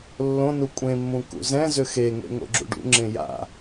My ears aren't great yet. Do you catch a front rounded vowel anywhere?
yes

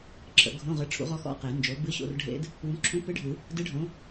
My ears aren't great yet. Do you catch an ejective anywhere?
no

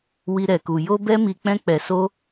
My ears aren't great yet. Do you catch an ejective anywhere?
no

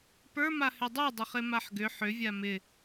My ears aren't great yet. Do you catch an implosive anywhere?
no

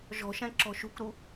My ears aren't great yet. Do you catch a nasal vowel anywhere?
yes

